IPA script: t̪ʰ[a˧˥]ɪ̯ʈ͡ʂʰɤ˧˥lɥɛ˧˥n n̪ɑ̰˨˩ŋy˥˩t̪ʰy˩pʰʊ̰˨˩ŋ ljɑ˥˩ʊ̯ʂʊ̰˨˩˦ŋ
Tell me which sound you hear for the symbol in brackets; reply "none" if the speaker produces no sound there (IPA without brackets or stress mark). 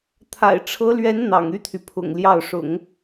a̰˨˩